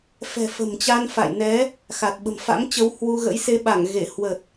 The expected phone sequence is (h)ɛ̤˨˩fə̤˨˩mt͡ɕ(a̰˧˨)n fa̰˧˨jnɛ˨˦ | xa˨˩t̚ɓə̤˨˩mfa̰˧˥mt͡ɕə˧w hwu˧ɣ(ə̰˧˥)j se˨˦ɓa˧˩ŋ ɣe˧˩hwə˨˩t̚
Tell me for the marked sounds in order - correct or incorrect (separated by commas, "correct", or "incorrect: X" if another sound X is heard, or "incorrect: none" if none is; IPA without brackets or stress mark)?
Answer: incorrect: f, incorrect: a˧, correct